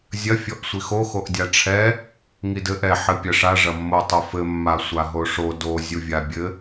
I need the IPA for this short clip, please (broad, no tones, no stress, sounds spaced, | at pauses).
zʲ ɐ fʲ ɔ ʔ sʷ i x o x o ʔ dʲ a ʈ͡ʂʰ ɛ | ŋ i d ɘ ʔ ɛ ħ ɘ pʲ ɐ ʂ a ʐ ɐ mː o tˤ o f ɘ mː a sʷ a ɦ o ʂ o d o zʲ u vʲ a bʲ ɘ